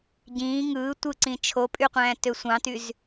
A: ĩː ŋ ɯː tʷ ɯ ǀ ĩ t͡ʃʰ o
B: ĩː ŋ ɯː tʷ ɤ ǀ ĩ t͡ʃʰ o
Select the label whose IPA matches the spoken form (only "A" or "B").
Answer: A